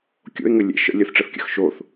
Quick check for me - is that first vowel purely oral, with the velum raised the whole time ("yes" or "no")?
yes